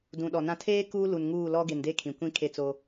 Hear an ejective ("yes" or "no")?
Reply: no